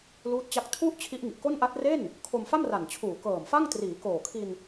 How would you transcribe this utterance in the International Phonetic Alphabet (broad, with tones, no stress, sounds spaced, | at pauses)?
l uː˦˥ t̚ t͡ɕ a˦˥ k̚ tʰ u˥˩ ʔ t͡ɕʰ i˦˥ ʔ ŋ i˨˩ ʔ k o˥˩ n ʔ a˦˥ t̚ r e˥˩ n | kʰ o˧ m f a˥˩ m r a˨˩ n t͡ɕʰ uː˨˩ k ɤː˨˩ m f a˥˩ ŋ t r iː˩˦ k oː˨˩ kʰ i˧ n